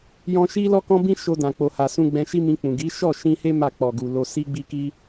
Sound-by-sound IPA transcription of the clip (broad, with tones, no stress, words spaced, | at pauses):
jɔ̃˧ʃi˦lɔ˦ kɔ̃˦bĩ˦ ʃo˧dã˨ k͡po˨ha˨sũ˧ ɡ͡bɛ̃˧ʃi˦mĩ˧k͡pũ˨ ɡi˨˦ʃɔ˦˨ ʃĩ˧he˦ ma˦˨k͡pɔ˨ɡu˨ lo˧si˦ɡ͡bi˦ki˦